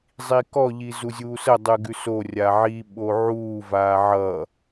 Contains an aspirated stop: no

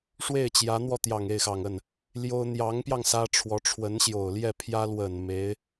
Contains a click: no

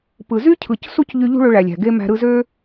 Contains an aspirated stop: yes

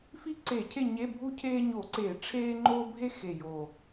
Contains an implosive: no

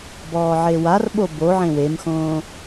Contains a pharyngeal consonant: yes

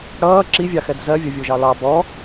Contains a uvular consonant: no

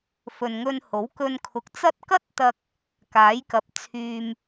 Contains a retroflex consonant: no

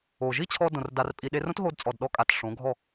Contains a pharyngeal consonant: no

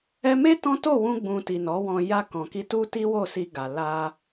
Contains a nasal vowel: yes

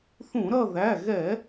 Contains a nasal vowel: yes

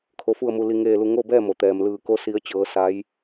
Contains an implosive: no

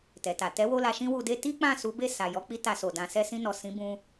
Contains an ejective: no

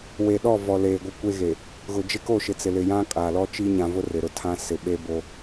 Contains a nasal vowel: yes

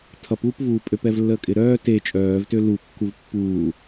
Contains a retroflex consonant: no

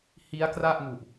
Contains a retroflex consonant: no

